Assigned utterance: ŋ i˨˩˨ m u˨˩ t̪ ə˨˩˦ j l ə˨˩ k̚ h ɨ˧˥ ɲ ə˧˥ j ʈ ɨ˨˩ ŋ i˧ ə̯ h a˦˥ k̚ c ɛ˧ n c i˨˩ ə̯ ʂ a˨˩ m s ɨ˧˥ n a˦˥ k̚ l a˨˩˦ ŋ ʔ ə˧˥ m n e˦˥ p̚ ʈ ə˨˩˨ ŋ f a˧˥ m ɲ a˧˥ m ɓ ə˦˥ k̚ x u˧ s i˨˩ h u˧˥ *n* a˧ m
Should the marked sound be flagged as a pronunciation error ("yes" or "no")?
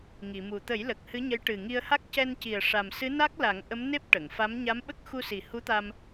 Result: yes